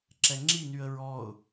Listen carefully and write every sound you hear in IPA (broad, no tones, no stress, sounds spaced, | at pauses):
ǁ ɛ ŋ͡ǁ i n y ə̯ ɹ ɔ ʊ̯